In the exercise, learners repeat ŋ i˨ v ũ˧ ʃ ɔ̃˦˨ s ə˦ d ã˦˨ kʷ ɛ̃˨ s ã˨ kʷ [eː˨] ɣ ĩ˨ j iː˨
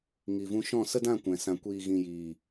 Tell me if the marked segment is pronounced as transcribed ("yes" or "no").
no